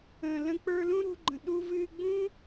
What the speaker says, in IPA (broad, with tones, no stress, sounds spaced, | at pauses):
ə̃ː˩ l ə̃˧ k͡p ə˞˧ l ũ˥ ɾ ṳ˧ ɡ͡ǃ ə̃˩ ɗ u˧ v ɨː˧ ɡ͡b ũ˥